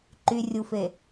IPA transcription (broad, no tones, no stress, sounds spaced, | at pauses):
ǃ y rʲ u f e